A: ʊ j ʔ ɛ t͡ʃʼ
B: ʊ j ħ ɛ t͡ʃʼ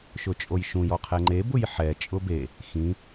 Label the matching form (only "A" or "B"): B